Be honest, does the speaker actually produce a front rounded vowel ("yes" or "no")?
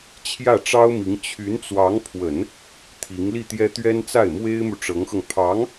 yes